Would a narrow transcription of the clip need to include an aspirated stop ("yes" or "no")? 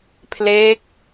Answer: yes